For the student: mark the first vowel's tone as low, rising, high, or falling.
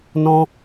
high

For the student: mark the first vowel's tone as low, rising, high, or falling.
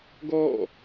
falling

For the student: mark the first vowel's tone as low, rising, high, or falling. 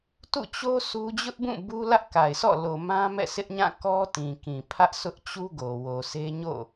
falling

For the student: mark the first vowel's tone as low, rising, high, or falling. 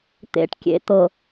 low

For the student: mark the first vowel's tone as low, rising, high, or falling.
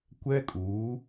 high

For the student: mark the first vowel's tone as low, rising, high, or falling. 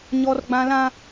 high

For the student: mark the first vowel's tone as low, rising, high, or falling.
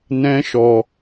high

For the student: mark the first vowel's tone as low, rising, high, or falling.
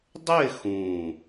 falling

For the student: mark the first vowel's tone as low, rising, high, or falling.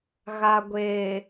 low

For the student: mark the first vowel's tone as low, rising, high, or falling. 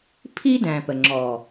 high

